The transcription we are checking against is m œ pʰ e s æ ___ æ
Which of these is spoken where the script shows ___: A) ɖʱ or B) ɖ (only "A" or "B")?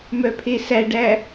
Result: B